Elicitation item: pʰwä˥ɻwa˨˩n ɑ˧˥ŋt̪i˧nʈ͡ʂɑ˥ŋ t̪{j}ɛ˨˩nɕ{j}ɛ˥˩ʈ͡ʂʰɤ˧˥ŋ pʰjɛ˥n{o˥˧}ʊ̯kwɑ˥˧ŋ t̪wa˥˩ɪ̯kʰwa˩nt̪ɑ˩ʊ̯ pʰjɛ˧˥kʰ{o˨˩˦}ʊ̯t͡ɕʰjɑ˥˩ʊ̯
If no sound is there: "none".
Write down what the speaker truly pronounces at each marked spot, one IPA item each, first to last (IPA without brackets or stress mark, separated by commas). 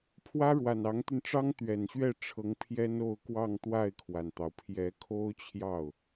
ɥ, ɥ, o˥˧, o˥